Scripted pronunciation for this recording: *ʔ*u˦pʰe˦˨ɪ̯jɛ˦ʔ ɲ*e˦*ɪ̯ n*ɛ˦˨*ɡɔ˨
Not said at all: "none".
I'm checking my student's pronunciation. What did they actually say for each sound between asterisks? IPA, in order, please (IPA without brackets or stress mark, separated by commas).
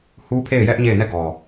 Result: h, e˦˨, ɛ˦˨